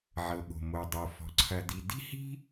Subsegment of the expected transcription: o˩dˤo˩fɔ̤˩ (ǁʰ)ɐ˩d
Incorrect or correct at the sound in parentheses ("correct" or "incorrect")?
incorrect